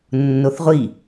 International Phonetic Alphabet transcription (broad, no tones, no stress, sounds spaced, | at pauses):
nː o θ ʁʷ i